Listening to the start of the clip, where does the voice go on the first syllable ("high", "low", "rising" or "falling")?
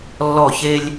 falling